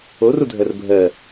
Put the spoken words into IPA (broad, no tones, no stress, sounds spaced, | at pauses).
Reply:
o r u dʱ ɜ r bʱ ɜ